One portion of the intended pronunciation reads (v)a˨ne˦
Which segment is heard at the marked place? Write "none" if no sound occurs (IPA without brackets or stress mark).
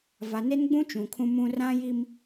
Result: v